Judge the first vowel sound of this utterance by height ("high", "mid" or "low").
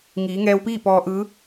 high